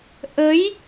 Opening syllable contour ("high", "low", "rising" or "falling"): rising